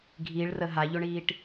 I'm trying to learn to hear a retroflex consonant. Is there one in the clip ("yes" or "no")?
yes